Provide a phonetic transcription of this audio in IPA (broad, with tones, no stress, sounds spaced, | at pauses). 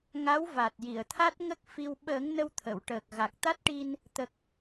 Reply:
ŋ a˧˥ w v a˨˩ t̚ j i˨˩˨ ə̯ t̪ʰ a˦˥ t̚ ŋ ə˦˥ k̚ f i˧ w ɓ əː˨˩˦ ŋ n ə˧ w t̪ʰ ə˨˩˨ w ʈ əː˨˩ k̚ ɣ a˨˩ k̚ t̪ a˦˥ t̚ ʈ i˧ n | t̪ ə˨˩ k̚